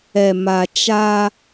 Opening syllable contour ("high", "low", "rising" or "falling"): low